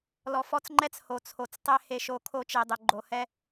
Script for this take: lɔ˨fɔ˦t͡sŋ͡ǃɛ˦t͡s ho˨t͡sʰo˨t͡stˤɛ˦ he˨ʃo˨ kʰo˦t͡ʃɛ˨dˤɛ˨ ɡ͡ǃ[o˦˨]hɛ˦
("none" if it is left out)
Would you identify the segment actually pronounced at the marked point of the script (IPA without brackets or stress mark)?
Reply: o˨